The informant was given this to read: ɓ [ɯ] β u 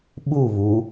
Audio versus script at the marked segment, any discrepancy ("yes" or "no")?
yes